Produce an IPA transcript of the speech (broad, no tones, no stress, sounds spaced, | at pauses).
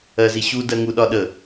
ɜ z i ɕ u d ɜ ŋ u ɗ ɒ ɗ ə